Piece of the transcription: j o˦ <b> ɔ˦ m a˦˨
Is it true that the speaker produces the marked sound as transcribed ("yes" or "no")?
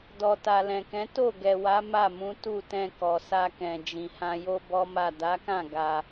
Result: yes